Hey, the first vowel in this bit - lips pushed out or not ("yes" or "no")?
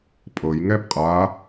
no